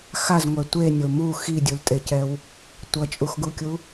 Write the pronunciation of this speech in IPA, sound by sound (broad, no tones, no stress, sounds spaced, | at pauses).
x a z ŋʷ ɛ tʷ e nʲ o m u x i dʲ u l tʼ e c ɛ w | tʷ ʌ t͡ʃʼ u x ɡ u kʲ u